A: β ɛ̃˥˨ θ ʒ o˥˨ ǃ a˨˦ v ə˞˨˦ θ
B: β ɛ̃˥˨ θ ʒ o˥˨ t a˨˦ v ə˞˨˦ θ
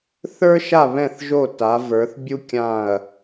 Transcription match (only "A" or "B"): B